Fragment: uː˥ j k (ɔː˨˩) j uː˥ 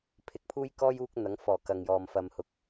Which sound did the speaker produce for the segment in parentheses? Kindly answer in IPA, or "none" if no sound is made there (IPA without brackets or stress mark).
ɔː˥